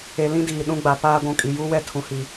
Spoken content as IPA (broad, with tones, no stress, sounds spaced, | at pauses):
e˨ l ĩ˦ d iː˨ ɗ ũ˦ ɡ͡b a˨ p aː˦ ɡʷ ũ˨ kʼ i˨ j u˦ w ɛ˦ tʰ ũ˨ h i˨